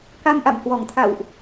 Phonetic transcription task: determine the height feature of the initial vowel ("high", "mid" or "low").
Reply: low